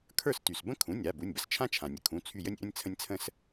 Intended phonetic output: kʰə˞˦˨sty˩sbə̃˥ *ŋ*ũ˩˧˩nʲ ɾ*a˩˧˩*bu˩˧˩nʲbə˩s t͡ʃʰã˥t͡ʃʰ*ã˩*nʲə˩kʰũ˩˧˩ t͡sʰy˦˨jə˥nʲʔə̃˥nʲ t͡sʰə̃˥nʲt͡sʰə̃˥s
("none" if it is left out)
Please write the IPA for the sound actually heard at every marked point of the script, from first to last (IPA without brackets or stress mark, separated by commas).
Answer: kʰ, a˩˧˩, ã˩